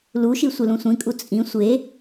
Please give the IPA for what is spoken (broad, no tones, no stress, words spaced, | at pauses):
luʃi sʷelũsʷĩkʼu t͡sʼĩ sʷe